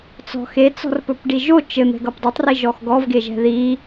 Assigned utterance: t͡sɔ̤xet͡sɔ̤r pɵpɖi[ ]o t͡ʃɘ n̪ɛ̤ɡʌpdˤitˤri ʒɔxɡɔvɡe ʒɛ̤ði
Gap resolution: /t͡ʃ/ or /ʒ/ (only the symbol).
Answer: ʒ